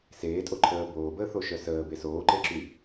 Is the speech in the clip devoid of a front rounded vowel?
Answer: no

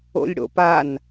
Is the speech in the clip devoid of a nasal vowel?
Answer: yes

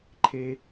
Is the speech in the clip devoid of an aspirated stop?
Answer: no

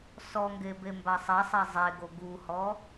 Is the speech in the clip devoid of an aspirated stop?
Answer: yes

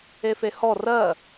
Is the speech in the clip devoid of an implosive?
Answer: yes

